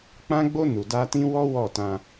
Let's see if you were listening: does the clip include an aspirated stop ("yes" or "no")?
no